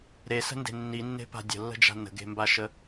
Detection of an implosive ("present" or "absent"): absent